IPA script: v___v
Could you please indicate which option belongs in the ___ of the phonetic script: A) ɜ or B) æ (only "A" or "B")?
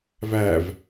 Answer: B